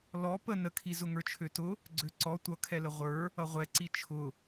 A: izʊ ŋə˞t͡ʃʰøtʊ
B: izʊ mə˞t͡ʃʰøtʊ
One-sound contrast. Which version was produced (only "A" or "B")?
A